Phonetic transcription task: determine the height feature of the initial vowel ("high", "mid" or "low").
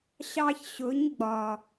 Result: low